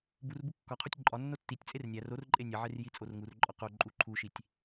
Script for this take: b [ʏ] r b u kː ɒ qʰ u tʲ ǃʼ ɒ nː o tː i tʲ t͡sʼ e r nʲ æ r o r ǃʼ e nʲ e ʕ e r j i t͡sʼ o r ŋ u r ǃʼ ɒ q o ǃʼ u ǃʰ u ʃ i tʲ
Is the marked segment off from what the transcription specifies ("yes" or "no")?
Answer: yes